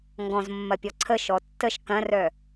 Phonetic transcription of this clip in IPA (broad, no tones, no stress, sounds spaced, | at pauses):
ŋ ɡ ɔ̃ z mː ɐ pʲ ɔ ǀʰ ə ʃ ɔ tː ə ʃ k ɐ̃ r œ